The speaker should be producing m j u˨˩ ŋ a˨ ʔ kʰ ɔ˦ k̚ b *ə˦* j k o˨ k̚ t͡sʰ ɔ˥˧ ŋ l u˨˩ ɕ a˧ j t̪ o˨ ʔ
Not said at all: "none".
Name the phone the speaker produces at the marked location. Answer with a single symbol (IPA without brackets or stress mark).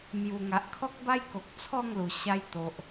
a˦